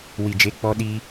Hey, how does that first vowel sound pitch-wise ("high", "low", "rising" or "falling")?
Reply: low